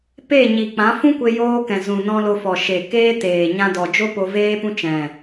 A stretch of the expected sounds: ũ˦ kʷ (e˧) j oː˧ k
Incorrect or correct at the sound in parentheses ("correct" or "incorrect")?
correct